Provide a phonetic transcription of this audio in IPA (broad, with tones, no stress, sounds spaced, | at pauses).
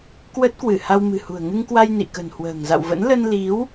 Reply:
k w ə˦˥ t̚ k w ɨ˧˩ h a˧ w m ɨ̤˨˩ h ṳ˨˩ ə̯ ŋ ɨ˧ ŋ k w a˧ j n ḭ˧˨ k ə̤˨˩ n h w ə̤ː˨˩ ŋ z a̰˧˨ w v ə̰˧˥ n l ə˧ n l i˨˦ w